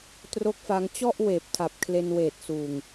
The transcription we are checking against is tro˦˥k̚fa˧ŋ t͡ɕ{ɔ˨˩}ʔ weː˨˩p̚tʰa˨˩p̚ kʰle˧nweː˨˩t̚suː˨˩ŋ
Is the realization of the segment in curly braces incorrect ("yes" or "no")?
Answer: yes